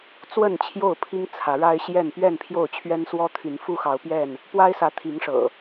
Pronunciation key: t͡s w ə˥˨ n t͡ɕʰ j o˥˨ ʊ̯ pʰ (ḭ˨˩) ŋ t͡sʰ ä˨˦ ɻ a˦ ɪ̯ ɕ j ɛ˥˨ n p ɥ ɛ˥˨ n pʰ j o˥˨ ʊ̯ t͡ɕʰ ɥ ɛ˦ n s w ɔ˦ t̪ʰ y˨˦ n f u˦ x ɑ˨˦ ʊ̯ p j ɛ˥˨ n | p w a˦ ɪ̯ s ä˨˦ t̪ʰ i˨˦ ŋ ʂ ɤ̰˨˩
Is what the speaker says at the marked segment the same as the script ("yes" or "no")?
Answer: no